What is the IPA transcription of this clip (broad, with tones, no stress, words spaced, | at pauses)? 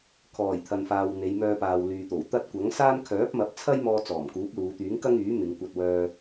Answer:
kʰɔː˨˩j t̪ʰɐ˨nfaː˨w n̪e˨˧jmœː˧paː˨w lyː˨t̪o˨˩wt̪ɐ˥t̚ kʷɐ˨˥ŋsaː˥n kʰœː˨˥p̚mɐ˨˥p̚t͡sʰɐ˥jmɔː˧ t͡sɔː˨˩mkuː˨˥p̚luː˨˧t̪yː˨˥ŋ kɐ˥ŋyː˨˥mɪ˨˧ŋ kʷɐ˧t̚wœː˧